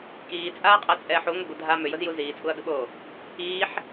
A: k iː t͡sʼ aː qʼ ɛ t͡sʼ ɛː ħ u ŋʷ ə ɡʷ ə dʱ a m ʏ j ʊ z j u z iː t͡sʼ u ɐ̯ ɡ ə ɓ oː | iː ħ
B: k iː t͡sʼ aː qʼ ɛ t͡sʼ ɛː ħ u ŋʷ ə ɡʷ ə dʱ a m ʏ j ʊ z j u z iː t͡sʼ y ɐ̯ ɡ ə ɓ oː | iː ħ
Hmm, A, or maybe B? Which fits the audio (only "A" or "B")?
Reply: A